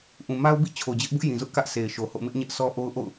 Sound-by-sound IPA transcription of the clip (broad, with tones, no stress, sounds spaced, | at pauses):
ʔ ũ˨ m a˦ ʊ̯ b ḭ˦˨ t͡ɕʰ o˨ d͡ʑ ɪ˦ ʔ b ʊ˦ ʔ j ĩ˨ z ʊ˦ ʔ k ä˦ ʔ sʰ e˨ ɪ̯ ʃ o˨ h o̰˦˨ m ɪ˦ ʔ ɲ ɛ˦ ʔ s ɔ˦ ʔ o˦ ʊ̯ ʔ o̰˦˨ ʊ̯